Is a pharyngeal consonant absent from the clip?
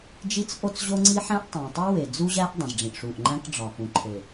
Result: no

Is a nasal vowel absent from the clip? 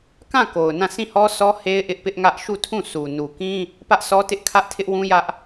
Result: no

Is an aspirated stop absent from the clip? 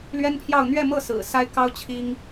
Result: no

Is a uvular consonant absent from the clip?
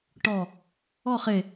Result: no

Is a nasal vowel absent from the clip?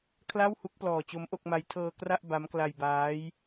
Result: yes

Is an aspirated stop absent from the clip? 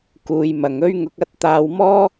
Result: yes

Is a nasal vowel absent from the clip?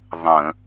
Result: no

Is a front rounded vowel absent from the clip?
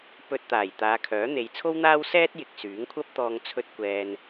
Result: no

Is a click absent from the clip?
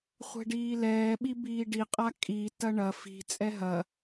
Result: yes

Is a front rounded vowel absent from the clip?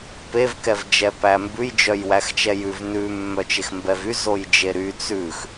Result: no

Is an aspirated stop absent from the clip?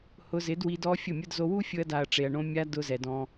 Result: yes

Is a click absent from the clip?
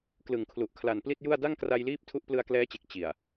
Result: yes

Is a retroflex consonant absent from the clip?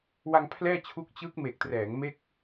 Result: yes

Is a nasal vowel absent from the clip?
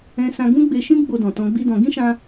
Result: no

